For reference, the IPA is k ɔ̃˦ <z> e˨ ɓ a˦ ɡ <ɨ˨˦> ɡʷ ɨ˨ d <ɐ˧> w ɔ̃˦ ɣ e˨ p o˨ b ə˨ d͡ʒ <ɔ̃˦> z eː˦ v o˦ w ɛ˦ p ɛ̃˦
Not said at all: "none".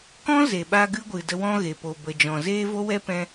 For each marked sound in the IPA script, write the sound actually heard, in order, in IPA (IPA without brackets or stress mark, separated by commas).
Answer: z, ɨ˦, ə˧, ɔ̃˨